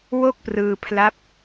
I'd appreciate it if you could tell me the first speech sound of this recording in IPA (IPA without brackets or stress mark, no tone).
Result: w